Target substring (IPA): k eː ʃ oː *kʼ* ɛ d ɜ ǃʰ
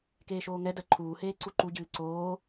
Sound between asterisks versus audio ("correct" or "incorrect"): incorrect